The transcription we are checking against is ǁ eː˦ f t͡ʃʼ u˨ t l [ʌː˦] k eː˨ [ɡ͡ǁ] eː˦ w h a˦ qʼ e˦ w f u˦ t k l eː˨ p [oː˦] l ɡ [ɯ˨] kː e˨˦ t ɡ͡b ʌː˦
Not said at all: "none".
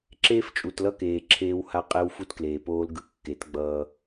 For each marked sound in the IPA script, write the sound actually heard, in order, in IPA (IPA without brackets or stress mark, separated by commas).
ʌ˦, ǁʰ, oː˦, ɯ˨